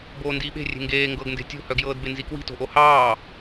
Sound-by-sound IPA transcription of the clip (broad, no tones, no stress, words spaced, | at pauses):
boːndiːɓe̤ rʲe̤ŋɡeː ŋɡɤɡnde̤ tʲo̤hœɡjɤːd benzikwi̤to̤ ʔohɑː